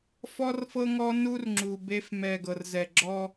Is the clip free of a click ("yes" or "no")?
no